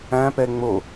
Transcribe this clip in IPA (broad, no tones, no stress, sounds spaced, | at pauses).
æ̃ p ɛ ŋ͡m o